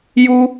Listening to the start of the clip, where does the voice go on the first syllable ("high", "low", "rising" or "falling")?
high